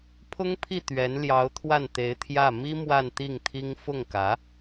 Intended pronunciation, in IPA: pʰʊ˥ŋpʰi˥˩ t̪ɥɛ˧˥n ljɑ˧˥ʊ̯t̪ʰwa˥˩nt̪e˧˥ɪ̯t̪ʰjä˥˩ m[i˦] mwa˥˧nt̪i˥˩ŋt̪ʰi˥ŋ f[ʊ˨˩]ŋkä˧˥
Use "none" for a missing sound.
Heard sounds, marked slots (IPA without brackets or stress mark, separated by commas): i˥, ʊ˥˩